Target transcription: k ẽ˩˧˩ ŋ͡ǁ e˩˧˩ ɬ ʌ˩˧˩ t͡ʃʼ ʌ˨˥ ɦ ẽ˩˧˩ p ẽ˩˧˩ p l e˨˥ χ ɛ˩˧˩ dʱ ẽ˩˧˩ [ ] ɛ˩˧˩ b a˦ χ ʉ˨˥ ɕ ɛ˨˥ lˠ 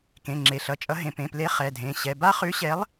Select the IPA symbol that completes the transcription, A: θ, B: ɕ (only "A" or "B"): B